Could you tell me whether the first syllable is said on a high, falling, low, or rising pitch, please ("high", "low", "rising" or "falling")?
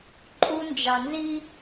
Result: high